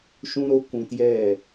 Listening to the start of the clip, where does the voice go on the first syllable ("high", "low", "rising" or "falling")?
high